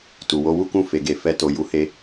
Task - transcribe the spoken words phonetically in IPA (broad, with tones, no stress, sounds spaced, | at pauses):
t u˨ w o˧ w u˦ k ũ˦˨ f e˧ ɡ e˧ f ɛ˦ t o˧ j u˦ h e˦